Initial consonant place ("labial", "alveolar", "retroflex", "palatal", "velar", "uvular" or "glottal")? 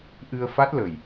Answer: glottal